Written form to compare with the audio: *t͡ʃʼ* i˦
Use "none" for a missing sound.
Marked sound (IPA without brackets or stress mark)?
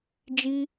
d͡ʒ